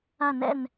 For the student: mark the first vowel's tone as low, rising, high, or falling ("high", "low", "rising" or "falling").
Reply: falling